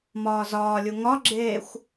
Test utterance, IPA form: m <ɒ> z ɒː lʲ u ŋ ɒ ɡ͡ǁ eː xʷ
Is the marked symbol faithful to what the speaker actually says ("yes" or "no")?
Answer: no